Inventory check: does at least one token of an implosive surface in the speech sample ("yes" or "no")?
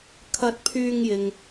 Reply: no